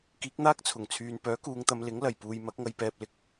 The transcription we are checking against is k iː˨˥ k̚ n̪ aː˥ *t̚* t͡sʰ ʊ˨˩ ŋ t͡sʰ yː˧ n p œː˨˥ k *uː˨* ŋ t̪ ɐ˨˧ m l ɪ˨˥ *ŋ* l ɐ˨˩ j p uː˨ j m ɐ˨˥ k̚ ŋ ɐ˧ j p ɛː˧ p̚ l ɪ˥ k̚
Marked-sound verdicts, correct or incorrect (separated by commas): incorrect, incorrect, correct